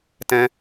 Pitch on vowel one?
high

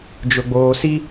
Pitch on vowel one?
low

